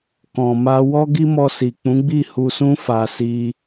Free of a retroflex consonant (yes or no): yes